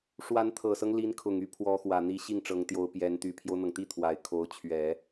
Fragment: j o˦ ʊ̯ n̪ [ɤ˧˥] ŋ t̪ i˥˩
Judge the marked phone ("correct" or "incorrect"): incorrect